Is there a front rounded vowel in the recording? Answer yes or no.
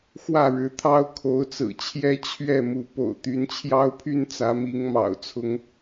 yes